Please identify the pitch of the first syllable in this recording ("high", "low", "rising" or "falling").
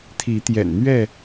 rising